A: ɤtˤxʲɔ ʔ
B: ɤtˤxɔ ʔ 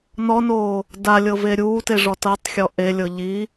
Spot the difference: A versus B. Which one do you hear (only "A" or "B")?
A